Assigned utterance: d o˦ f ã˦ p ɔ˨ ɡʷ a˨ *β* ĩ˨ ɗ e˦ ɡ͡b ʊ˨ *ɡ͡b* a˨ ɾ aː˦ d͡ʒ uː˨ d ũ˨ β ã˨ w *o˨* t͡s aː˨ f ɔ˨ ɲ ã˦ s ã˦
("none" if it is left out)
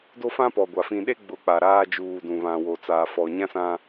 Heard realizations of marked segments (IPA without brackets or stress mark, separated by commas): f, k͡p, o˨